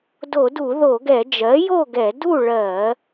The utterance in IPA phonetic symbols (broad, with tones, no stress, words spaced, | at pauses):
do˧˩˧du˧˩˧ðo˧˩˧ɡɛ˧˩˧ d͡ʒɜ˩˥jo˥˨ɡɛ˧˩˧ du˥˨ ɭɜ˧˩˧